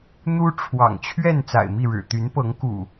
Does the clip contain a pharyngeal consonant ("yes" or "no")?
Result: no